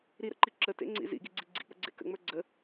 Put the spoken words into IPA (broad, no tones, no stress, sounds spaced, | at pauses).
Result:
ɾ i ɾ ə̰ ǃ i ǁ ə t ḛ ŋ͡ǀ ḭ z ḭ ɡ i ɡ͡ǀ i ɡ͡ǀ ḭ k͡p ə̰ ɡ͡ǀ ḛ k ə̰ ŋ͡m ə˞ ɡ͡ǀ ə